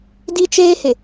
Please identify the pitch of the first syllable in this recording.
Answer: high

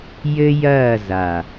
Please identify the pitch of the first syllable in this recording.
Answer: high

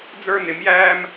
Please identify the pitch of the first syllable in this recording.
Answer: high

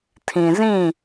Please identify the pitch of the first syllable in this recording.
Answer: low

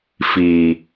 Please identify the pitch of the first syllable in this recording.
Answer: low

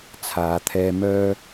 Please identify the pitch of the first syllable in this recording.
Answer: low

